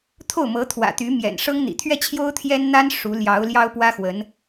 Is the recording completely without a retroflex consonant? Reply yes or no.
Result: no